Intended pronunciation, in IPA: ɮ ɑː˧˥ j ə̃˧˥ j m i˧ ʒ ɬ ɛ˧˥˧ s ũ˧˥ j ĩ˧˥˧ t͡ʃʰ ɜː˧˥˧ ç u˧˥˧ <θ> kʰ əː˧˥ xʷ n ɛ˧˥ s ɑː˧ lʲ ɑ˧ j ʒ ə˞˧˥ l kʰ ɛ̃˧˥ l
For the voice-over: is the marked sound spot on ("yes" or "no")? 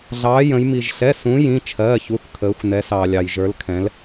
yes